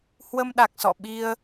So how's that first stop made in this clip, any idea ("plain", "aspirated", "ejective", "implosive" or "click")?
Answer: implosive